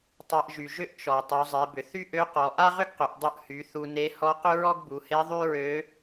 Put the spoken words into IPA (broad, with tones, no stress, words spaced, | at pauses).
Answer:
tˤa˧ʔʒy˩ʒʏ˥ʔ t͡ʃɔ˩ tˤu˩˧zˤe˩˧bʏ˩ θy˥ʔø˧˥qɔ˩˧ ʔa˥ʁʏ˥ɡqʏ˩˧ʔ dˤu˧ʔhy˩˧ θu˧ne˧˥ hɔ˧˥qʏ˥ɹɔ˥ɡ bu˩˧he˧˥ ðˤy˥ɹø˧˥